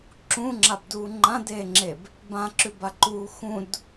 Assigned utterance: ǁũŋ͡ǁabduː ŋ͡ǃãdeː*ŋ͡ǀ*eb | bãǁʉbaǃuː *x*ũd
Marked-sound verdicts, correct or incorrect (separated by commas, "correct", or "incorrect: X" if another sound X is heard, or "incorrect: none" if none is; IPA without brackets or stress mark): incorrect: ŋ͡ǁ, correct